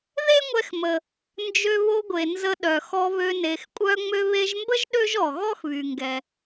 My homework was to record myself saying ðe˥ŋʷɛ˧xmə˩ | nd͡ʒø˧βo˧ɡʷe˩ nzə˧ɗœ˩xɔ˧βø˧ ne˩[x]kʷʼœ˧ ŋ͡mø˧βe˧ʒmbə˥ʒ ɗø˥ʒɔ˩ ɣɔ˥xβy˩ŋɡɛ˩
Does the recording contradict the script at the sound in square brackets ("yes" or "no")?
no